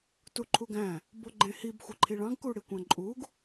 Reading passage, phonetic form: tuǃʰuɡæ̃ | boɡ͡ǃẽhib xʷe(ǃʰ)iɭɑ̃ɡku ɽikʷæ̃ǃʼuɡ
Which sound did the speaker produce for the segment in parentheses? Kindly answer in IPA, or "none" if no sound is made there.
ǃʰ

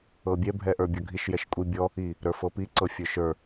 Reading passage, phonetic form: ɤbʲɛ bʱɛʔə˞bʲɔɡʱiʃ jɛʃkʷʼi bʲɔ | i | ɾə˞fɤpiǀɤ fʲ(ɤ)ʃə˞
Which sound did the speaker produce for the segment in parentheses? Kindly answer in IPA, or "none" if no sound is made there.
ə˞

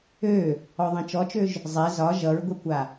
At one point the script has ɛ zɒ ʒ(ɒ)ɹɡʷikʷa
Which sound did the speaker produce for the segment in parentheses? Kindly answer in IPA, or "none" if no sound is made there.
ʌ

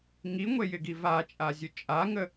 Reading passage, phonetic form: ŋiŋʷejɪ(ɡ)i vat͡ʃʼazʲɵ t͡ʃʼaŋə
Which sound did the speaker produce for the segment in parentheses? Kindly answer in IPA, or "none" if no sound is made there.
ɡ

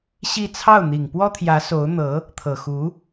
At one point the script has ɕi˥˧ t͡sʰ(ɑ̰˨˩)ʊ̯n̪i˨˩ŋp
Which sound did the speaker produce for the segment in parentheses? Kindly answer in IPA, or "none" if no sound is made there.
ɑ˥˩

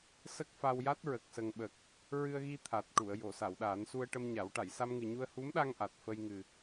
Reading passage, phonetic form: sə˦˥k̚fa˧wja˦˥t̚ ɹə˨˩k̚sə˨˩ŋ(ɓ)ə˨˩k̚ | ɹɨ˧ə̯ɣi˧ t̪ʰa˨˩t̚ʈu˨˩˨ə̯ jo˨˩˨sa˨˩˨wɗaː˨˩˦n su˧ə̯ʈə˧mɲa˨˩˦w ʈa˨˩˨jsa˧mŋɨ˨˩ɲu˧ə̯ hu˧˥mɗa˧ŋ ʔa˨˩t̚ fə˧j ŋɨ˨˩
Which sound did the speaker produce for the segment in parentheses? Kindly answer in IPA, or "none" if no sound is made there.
ɓ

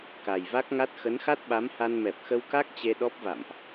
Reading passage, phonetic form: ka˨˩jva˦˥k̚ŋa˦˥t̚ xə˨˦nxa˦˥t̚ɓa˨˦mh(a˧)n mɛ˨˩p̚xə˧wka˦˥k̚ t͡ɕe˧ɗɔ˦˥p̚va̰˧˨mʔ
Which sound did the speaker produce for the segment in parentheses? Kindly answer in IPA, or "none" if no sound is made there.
a˧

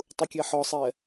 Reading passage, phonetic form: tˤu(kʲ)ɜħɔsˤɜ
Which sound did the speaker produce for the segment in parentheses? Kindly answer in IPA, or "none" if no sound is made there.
kʲ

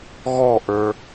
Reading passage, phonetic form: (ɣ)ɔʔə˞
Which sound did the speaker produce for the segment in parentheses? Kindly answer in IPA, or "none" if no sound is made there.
ɣ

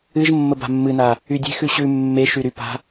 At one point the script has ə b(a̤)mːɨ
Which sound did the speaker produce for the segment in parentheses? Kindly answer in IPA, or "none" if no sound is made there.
a̤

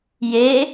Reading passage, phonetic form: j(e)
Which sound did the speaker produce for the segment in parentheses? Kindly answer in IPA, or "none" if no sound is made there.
e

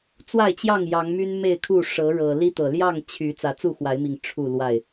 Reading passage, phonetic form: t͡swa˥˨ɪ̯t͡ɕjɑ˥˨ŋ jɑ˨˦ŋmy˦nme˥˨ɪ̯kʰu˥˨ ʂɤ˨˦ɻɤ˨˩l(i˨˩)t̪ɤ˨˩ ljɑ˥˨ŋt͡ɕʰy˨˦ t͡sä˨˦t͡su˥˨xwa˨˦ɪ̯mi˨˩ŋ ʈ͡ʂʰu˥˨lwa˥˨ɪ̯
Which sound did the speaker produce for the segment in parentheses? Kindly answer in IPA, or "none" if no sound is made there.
i˦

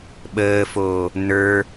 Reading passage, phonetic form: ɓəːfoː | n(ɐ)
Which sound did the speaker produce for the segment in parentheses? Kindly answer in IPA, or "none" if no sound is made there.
ə˞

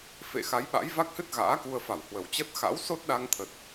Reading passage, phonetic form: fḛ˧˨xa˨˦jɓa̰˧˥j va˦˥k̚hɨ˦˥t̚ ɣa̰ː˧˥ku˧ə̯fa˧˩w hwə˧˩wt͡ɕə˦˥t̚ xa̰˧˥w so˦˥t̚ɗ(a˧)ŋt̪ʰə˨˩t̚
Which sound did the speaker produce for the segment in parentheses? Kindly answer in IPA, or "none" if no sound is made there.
a˧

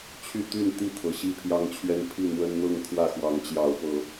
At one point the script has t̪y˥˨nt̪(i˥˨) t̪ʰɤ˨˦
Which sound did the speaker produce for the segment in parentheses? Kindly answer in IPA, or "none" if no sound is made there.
i˥˨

